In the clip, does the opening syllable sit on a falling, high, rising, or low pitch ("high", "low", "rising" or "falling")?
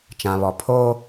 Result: low